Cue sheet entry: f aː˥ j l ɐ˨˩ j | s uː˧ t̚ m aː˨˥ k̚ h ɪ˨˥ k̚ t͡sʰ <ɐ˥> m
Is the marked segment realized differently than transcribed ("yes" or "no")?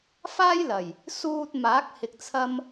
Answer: no